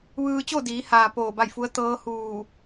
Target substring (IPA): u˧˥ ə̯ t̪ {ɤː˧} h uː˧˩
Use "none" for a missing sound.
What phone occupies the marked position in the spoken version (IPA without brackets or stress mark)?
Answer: ɤː˧˥